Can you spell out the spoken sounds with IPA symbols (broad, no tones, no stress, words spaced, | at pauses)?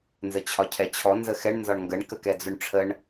nzət͡ɕʰɒcʰɛt͡ɕʰɔ nzəxɛɳ nzɒɳŋɡəɳ kəkɛd͡zʊɳʈ͡ʂʰəɳ